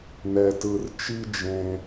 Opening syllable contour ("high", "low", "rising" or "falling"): low